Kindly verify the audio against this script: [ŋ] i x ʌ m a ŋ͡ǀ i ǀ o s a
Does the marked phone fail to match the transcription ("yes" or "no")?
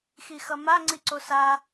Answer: yes